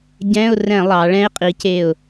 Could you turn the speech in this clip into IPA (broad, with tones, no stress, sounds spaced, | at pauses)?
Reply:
ɟ ɛ̃˧˥˧ ʊ̯ r ɛ̃˧˩˧ lˠ ɑ˩˧ ɭ ɛ̃˥ ɪ̯ qʼ i˩˥ c e˧˩ ʊ̯